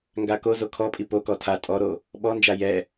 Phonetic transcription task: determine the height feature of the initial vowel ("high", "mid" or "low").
low